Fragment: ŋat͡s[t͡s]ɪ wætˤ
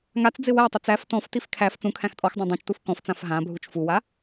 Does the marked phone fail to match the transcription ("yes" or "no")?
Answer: yes